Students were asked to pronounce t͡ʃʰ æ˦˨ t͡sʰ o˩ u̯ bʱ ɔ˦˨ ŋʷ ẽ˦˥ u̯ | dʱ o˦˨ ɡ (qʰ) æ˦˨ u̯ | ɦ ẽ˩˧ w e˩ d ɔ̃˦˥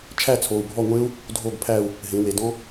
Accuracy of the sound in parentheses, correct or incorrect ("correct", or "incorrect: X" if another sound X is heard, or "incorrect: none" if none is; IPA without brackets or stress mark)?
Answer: incorrect: pʰ